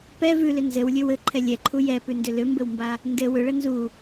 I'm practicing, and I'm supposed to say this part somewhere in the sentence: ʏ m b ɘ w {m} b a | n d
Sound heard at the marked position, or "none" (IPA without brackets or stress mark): m